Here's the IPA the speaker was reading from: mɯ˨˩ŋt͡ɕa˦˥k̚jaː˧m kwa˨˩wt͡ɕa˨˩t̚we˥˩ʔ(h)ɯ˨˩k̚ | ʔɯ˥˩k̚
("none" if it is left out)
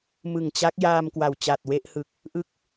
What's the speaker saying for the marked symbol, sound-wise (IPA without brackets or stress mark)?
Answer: h